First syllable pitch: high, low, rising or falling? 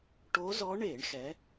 rising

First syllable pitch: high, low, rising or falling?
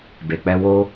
low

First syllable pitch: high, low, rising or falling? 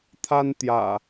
high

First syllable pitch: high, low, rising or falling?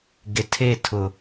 low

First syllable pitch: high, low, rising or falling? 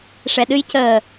low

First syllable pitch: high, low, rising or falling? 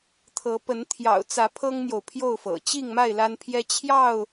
rising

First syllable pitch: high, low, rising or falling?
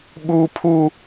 high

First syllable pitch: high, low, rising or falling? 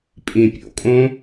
low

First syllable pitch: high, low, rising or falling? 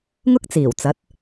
high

